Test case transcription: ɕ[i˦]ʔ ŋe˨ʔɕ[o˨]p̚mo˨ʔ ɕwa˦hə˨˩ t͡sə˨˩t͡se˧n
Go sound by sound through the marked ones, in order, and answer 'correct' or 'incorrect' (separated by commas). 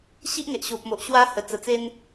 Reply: correct, correct